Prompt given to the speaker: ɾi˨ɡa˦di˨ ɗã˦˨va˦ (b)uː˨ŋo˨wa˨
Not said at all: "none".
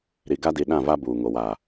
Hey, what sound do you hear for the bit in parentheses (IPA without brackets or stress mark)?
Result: b